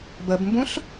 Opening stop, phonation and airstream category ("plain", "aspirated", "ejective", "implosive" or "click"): plain